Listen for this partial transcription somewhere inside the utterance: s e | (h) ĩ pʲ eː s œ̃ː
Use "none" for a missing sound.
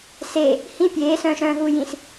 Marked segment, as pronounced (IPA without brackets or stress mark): h